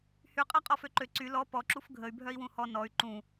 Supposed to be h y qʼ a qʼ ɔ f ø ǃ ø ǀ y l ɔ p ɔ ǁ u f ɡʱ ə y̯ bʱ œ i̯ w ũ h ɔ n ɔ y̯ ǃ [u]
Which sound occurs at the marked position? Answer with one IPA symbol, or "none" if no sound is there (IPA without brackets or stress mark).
ũ